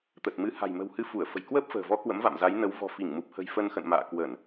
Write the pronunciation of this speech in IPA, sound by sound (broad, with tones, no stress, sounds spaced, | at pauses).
t̪ ə˨˩ t̚ m ɨ˨˦ h a̤˨˩ j m ə̤˨˩ w h ɨ˨˦ f u˧˩ ə̯ f ə̤˨˩ j k w əː˦˥ p̚ f ə̤ː˨˩ v ɔ˨˦ k w ə̰˧˥ m v a̰˧˨ m z a˨˦ j n ə˨˦ w v ɔ̤˨˩ f i˧˩ ŋ m u˨˩ p̚ h ə̤˨˩ j f ə˧ n x ə̰˧˨ n m a̰ː˧˨ k w ə˧˩˨ n